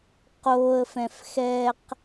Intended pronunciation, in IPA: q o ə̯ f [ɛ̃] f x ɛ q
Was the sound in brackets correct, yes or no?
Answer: yes